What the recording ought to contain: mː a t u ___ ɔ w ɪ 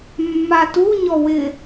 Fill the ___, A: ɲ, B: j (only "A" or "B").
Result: A